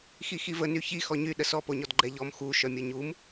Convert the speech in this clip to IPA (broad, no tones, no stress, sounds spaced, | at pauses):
x i x i v ə n y ç i x ɔ ɲ y ɗ ə s ɔ p o ɲ ɔ d ɡ͡ǃ ɛ ʎ ɔ m x u ʃ œ mʲ o ɲ u m